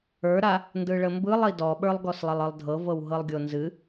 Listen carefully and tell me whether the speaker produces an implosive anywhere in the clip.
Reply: yes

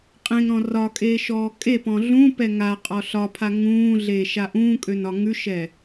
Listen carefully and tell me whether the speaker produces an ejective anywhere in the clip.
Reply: yes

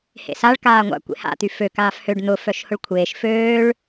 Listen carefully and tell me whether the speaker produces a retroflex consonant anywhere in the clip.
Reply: yes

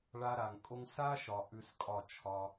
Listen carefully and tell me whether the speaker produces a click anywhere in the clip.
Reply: no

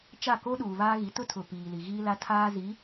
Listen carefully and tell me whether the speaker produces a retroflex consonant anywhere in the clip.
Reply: no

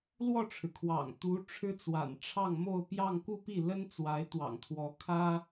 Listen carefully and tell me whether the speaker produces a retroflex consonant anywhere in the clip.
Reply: yes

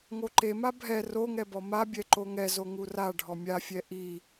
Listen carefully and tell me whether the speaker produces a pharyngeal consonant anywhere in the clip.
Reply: no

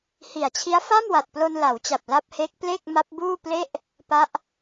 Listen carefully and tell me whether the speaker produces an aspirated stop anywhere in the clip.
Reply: yes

